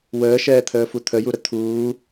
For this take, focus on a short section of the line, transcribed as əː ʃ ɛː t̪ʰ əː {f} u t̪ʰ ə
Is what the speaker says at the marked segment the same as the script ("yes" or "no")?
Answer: yes